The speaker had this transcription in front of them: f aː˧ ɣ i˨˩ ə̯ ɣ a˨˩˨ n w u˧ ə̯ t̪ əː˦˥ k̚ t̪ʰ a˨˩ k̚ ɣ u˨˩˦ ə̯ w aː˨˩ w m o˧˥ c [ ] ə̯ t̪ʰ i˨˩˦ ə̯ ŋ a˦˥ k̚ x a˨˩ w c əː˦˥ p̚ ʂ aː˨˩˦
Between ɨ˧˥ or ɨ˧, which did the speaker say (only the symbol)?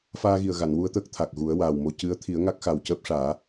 ɨ˧˥